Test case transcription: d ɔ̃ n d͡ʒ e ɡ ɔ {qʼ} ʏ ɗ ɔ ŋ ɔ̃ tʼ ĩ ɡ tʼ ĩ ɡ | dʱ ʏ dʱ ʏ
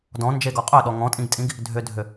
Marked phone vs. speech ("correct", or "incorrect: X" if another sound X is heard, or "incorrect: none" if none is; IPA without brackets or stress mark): correct